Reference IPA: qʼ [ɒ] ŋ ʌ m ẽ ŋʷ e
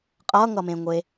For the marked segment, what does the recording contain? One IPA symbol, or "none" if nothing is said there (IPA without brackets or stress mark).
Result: ʌ